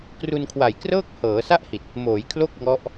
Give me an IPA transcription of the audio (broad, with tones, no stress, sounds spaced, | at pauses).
k r u˧ n kʰ w a˨˩ j k r ɤː˥˩ k̚ h ɤː˩˦ s a˥˩ ʔ h i˨˩ t̚ | m oː˩˦ j kʰ l o˥˩ k̚ ŋ ɔ˦˥ ʔ